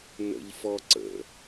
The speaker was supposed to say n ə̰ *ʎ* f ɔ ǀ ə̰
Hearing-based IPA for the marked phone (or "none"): ʎ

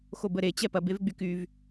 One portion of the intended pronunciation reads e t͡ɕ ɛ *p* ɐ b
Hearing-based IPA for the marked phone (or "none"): p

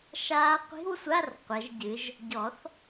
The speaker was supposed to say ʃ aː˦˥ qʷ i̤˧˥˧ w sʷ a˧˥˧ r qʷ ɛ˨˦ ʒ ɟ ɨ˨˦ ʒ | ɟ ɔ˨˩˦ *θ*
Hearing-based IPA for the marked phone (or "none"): θ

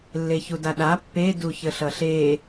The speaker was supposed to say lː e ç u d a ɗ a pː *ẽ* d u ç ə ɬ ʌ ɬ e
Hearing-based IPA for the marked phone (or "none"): e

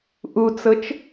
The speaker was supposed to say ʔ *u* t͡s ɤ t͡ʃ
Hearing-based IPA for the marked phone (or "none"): u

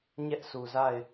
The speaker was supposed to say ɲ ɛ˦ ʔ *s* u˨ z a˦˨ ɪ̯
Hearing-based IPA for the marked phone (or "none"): s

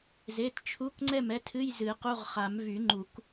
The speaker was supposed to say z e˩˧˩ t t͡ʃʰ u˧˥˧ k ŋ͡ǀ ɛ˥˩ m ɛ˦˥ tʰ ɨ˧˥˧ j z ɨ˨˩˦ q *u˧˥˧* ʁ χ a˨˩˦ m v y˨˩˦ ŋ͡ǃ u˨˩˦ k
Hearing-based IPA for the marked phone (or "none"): u˧˥˧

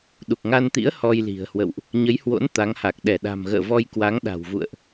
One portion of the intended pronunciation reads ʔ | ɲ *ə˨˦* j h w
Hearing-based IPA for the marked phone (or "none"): ə˨˦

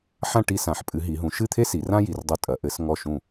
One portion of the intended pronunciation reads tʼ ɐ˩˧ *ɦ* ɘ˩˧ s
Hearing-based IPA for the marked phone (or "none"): ʔ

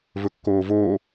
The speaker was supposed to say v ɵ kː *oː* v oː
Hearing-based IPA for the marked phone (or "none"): oː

